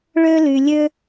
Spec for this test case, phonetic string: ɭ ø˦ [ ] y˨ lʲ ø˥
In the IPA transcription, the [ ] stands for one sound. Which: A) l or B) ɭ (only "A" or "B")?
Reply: A